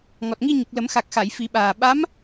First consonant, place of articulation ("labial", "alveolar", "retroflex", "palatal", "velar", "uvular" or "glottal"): velar